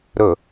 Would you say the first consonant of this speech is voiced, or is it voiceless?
voiced